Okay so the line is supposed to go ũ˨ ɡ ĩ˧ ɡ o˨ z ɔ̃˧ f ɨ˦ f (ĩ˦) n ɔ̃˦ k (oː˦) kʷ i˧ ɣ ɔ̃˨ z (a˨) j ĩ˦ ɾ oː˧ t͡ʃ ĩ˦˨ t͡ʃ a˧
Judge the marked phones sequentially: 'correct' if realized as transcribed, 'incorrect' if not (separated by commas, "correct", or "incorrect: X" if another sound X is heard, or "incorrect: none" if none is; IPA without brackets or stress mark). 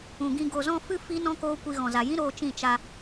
incorrect: i˦, correct, correct